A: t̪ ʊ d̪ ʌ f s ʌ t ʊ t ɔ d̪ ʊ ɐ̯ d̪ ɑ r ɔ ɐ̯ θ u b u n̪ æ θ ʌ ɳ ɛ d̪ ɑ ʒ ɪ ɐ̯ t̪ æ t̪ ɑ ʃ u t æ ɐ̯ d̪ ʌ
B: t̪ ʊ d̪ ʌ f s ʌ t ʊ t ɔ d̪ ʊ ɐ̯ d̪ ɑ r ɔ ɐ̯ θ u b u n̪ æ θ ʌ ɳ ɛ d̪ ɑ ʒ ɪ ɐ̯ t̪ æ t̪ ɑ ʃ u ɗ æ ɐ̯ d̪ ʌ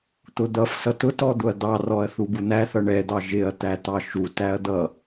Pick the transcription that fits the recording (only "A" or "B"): A